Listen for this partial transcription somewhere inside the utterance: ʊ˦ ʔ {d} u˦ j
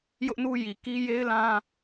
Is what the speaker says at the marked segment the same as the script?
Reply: no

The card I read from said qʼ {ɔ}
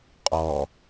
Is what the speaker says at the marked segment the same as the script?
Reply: yes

